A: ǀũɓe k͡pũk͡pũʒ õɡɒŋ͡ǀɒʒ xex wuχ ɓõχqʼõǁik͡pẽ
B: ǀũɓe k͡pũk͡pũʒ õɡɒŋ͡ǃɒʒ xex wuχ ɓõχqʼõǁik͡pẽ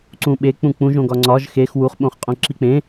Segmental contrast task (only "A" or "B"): A